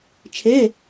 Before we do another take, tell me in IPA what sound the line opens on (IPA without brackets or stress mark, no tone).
t͡ʃʰ